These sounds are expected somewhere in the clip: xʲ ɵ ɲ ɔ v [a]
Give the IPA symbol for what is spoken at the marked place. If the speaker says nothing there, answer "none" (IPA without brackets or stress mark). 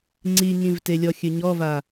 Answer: a